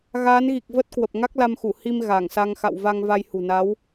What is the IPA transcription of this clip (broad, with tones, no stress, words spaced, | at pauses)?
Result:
ɣaː˨˦nɣi˨˩k̚ və˦˥t̚kwə˨˩p̚ ŋa˦˥k̚la˧mxu˧˩ hi˧m ɣa˧˩ŋsa˧ŋ xa̰˧˨w va˧ŋ va˧jhṳ˨˩na˨˦w